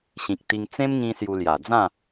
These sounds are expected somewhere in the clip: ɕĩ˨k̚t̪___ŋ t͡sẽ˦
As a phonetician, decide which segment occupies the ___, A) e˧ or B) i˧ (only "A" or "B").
B